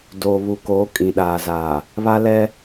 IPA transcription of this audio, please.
d oː˨ β u˨ k oː˨˦ kʼ ĩ˨ ɗ aː˨ z aː˨ | β a˦ l ɛ˦

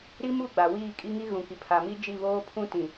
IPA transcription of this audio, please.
ɾ i˦ m u˦˨ ɡ͡b a˨ w iː˦˨ kʼ i˦ ŋ i˦ ɣ ũ˨ k i˨ pʰ a˨ m i˦ d͡ʒ i˦˨ β oː˦ pʰ ũ˦ t ĩ˨

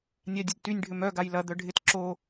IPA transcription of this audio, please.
nʲ a dʲ ə d t y nʲ ɖʱ ʏ m œ ɡ a j l ɐ d̪ œ ɖʱ ɪ t ǁ o

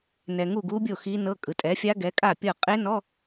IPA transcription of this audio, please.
n ɛ˨ ŋ u˥˩ ɡ u˦˥ bʲ o˥˩ x i˦˥ n ɤ˧˥˧ kʼ ɯ˩˥ tʼ ɛ˩˥ fʲ a˦˥ ɡ ɛ˩˥ kʼ a˥˩ pʲ ɤ˥˩ qʼ e˦˥ n ɔ˧˥˧

